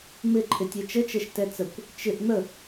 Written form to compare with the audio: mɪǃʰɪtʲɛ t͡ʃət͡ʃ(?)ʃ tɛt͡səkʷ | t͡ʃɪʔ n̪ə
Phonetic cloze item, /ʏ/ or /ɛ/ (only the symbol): ɛ